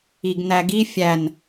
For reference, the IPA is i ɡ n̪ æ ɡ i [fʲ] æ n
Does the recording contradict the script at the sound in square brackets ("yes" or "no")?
no